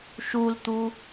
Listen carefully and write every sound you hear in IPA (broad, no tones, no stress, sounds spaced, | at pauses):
ʃ u l t̪ u